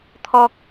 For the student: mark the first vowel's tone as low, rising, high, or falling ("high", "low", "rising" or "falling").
high